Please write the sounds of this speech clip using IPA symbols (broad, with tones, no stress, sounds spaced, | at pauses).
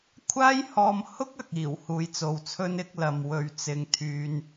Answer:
kʷʰ aː˥ j h ɔː˧ m h ʊ˥ k̚ ɐ˨ k̚ iː˨˩ w h uː˨ j t͡s o˨ w t͡sʰ ɵ˥ n ɪ˥ k̚ l ɐ˨ m w ɵ˨ ɥ t͡s ɪ˨˧ ŋ t̪ʰ yː˧ n